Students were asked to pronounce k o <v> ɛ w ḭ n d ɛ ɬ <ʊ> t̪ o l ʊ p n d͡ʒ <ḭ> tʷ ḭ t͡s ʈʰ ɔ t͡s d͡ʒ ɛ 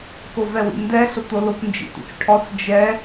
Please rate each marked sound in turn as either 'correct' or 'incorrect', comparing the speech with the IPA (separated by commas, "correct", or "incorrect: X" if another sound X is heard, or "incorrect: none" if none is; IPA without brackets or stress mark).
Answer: correct, correct, correct